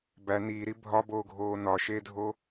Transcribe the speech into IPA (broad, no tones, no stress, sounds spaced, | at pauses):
b æ n iː ɾ i bʱ ɒ b oː ɡʱ oː n ɒ ʃ e dʱ o